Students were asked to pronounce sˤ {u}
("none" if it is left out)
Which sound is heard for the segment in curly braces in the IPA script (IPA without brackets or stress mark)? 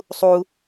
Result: u